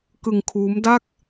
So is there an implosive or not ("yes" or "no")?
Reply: no